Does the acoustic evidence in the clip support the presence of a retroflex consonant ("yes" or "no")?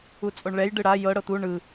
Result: yes